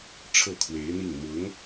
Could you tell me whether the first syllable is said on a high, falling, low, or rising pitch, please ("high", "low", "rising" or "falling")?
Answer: falling